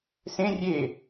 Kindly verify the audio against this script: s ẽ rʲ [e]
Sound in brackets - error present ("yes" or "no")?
no